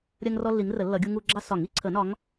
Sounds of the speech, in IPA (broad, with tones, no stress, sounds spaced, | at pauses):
ɾʲ ɜ˦ ŋ r ɔ˦ lː i˨˦ ŋ r ə˨˩˦ lː ʌ˨˦ ɡʲ u˦ ŋ u˦ ɡ͡ǁ ɑ˦ s ɒ˨˩˦ ŋ i˦ ǀʰ ə˨˩˦ n ɒ˨˦ ŋ